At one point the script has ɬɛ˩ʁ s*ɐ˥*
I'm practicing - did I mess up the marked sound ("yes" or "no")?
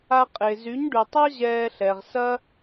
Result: no